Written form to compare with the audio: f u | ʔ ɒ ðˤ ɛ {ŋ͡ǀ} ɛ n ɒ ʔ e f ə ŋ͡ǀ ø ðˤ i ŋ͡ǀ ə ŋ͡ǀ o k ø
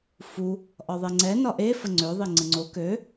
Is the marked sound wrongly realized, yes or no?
no